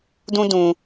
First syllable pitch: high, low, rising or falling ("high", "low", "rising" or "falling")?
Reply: high